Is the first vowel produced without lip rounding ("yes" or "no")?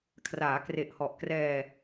yes